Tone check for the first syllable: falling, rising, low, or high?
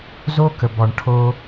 high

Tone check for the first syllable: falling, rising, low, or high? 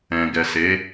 low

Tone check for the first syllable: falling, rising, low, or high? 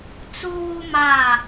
high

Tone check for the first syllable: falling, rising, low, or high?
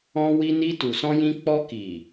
high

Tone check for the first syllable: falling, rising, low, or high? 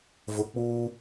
low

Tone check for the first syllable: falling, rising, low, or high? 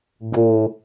low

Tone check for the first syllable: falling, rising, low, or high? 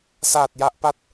low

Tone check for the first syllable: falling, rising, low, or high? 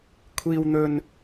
low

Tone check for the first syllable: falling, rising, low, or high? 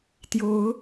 rising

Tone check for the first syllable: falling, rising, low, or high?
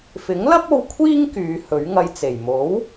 rising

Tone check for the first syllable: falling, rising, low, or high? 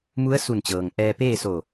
rising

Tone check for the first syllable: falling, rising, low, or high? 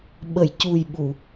low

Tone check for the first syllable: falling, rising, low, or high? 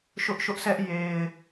high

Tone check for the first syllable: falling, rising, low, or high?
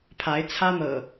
rising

